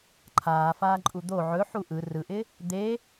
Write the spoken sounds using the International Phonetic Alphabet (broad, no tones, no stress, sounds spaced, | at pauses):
ǃʰ aː f aː ǃʼ u d̪ o ʕ ɵ ħ u ʔ ɯ r ɯ ʔ ɪ | d̪ e